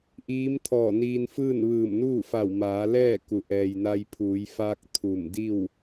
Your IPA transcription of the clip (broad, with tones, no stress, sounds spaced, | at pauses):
ʔ iː˧˥ m t̪ʰ ɔː˧˩ n iː˧ n f ɯː˥˨ n ʋ ɯː˧˩ m n uː˥˨ f a˧˩ w m aː˩˧ l ɛː˥˨ k u˩˧ ʔ ɛː˩ j n a˧ j pʰ uː˩˧ j f a˧ k̚ t̪ʰ u˧˩ m d i˥˨ w